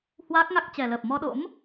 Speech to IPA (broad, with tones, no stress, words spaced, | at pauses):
hwaː˦˥k̚ŋa˦˥k̚t͡ɕɛ˨˩ ləː˨˩p̚mɔ˧ɗo̰˧˥m